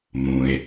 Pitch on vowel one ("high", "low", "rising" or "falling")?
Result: low